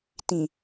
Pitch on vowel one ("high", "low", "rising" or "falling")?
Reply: low